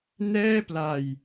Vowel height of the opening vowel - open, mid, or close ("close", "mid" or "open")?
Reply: mid